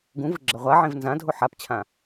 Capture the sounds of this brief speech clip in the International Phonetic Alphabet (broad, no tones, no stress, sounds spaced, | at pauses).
ɡ ũ v ɯ ɡ͡ǁ ʌ ʁʷ a ʕ ẽ v n z ã dʱ o ħ a p t͡ɕʰ ã